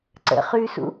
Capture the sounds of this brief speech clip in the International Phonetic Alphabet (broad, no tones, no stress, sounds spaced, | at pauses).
ǀ ə̰ χ ʉ s ṵ